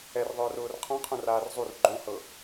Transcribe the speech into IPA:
ɛ r ðˤ ʊː r ʊː r qʰ ɔ̃ qʰ ũ r aː r zˤ u r ɡ͡ǃ õ h ɤ

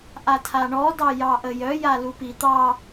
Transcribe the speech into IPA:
ʔ a tʰ a ɳ ɔ d ɑ j ɑ ʔ ə j œ j a l u p i t̪ ɑ

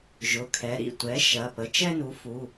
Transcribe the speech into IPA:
ʒ ʊ˩˧˩ kʰ ɛ˩˥ ɾ ḭ˩˧˩ tʷ ɛ˩˥ ʃ ɐ˩˧˩ p ə˩˥ t͡ʃ ɛ˦ n u˩˥ f u˩˧˩

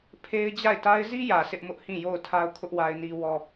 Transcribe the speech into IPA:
pʰ e˦ ɪ̯ d͡ʑ a˦˨ ɪ̯ t a˦ ɪ̯ z i˦ j ä˨ sʰ ɪ˦ ʔ m ʊ˦ ʔ h ĩ˦˨ j o˦˨ ʊ̯ tʰ a˦ ʊ̯ kʰ ʊ˦ ʔ w a˦ ɪ̯ n i˦ w ɔ˦

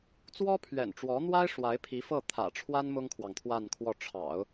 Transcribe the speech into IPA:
t͡s w ɔ˥ pʰ ɥ ɛ̰˨˩ n ʈ͡ʂ w ɔ˧˥ n̪ w a˥ ɪ̯ ʂ w a˧˥ ɪ̯ pʰ i˧˥ f ɤ˥˩ t̪ʰ ä̰˨˩ ʈ͡ʂʰ w a˥ n m ʊ˥ ŋ kʰ w ɑ˨ ŋ t̪ʰ w a˥˧ n kʰ w ɔ˥˩ ʈ͡ʂʰ ɑ̰˨˩˦ ʊ̯

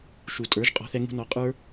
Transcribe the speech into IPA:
ʃ u˨ tʼ ə˞˨˦ ʒ qʼ ɔ̤˧ θ ɛ˧ ŋ ṳ˧ n ɔ˨˦ qʼ ə˞˦

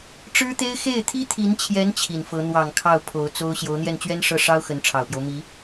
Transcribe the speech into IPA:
ʈ͡ʂ ɻ̩˥ t̪ e˥ ɪ̯ x e˥˩ ɪ̯ t̪ʰ i˥ t̪ʰ i˧˥ n t͡ɕʰ j ɛ˧˥ n t͡ɕʰ i˨˩ n f ɤ˧˥ n̪ w ɑ˨˩ ŋ kʰ ɑ˥˩ ʊ̯ pʰ o˧˥ ʊ̯ t͡s o˥ ʊ̯ ɕ j o˧˥ ʊ̯ n̪ j ɛ˥˩ n t͡ɕ ɥ ɛ˥ n ʂ ɤ˥˩ ʂ ɑ˥ ʊ̯ x ə˧˥ n ʈ͡ʂʰ ɑ˨˩ ʊ̯ p j o˦ ʊ̯ m i˧˥

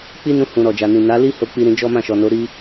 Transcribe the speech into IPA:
k͡p i˦ n ũ˧ h ũ˨ ɾ ɔ˨ d͡ʒ a˨ n ĩ˨ n a˨˦ l i˦ h o˦ k͡p i˦ ɾ ĩ˦ d͡ʒ ɔ˦ m ã˦˨ ʃ ɔ˨ n o˨˦ ɾ i˧

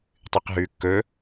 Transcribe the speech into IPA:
tˤ ɨ q ɦ ʉː kː ɵ

